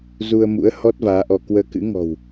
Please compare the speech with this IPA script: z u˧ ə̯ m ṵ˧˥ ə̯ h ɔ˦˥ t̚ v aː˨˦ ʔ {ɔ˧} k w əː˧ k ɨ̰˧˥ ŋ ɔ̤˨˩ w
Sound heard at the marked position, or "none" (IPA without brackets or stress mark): ɔ˧